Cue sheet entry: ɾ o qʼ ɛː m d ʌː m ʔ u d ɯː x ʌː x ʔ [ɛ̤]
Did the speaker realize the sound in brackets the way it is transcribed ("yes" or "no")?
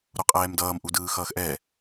no